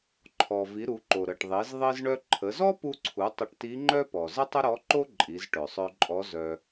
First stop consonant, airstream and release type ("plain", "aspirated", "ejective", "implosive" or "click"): click